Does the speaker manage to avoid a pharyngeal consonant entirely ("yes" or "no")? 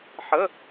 no